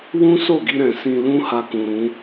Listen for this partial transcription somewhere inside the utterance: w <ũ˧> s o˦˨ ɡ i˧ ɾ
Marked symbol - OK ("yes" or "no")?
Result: no